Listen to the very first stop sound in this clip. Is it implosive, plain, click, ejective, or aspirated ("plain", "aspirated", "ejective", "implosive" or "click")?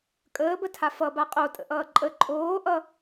ejective